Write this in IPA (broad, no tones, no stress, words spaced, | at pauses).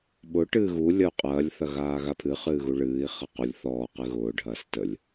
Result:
ɓʊ ʈɨːɣu lʲɐu̯qʼɐːlʲ θɐɣaːɣapʰɨ χɨːɣuɭɨːi̯ χɐqulʲ θɔː qɨɣʊː ɖʱɐːstəlʲ